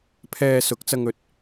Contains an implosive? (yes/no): no